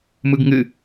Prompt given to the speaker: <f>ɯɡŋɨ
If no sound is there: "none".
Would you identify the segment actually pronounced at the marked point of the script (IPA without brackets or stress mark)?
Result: m